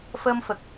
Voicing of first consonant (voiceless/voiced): voiceless